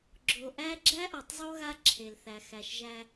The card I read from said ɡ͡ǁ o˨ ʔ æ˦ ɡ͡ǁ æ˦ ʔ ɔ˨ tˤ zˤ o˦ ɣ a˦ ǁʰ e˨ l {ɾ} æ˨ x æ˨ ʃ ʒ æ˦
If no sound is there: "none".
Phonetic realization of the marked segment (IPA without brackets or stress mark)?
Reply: θ